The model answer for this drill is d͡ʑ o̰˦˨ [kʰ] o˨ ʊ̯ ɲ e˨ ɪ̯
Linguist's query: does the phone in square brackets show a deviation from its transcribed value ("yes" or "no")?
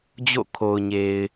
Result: no